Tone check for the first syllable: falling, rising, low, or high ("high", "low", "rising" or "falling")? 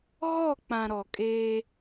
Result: falling